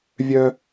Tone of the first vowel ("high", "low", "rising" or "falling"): high